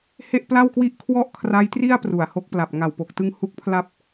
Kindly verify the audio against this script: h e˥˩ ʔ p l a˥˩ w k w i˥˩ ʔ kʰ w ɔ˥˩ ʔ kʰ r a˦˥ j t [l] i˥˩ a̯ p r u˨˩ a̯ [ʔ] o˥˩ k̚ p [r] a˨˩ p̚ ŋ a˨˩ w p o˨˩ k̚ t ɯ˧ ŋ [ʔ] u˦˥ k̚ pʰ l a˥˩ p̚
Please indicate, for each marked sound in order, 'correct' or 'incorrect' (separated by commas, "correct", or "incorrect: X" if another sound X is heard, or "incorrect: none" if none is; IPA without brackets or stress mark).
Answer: incorrect: r, incorrect: h, incorrect: l, incorrect: h